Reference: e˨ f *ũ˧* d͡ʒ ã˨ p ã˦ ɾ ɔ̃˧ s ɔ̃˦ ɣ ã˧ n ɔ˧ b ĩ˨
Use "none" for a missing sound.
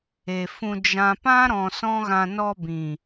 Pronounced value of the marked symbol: ũ˧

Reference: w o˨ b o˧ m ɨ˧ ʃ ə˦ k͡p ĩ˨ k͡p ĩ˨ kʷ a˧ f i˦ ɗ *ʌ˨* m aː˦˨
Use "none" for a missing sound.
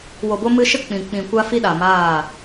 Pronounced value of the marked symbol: a˨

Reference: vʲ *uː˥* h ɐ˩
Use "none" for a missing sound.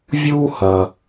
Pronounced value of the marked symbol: uː˥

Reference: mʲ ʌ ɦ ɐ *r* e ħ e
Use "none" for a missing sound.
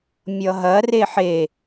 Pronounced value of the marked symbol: r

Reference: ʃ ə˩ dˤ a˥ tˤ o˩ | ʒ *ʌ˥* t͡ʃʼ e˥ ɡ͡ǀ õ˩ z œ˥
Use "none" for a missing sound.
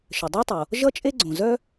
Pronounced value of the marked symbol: ʌ˥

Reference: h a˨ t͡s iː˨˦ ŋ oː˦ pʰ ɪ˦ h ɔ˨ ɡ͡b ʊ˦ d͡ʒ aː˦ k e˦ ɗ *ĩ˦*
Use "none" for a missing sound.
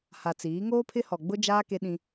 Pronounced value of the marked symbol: ĩ˦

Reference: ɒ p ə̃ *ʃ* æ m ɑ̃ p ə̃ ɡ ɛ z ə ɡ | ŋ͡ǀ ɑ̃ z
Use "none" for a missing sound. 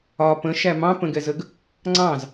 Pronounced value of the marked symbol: ʃ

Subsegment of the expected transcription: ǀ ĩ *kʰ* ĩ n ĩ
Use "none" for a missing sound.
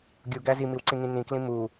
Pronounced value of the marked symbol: ŋ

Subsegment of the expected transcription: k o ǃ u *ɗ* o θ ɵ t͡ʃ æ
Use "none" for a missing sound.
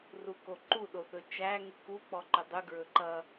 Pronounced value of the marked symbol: ɗ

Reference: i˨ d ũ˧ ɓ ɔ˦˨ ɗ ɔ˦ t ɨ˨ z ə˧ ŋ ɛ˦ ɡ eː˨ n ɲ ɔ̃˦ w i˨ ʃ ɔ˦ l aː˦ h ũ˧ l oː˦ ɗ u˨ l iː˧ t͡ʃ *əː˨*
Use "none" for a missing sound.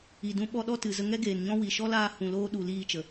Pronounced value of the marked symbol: ə˨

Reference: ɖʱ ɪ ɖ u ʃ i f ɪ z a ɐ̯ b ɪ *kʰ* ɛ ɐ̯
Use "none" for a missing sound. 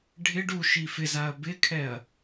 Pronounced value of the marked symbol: kʰ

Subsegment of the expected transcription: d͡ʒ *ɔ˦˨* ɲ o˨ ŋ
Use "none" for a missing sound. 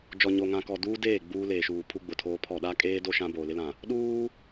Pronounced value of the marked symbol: ɔ˨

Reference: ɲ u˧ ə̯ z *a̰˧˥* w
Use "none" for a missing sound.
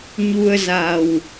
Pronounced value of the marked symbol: a˨˩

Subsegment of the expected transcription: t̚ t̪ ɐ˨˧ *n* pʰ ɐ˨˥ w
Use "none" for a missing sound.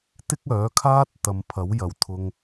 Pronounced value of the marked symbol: m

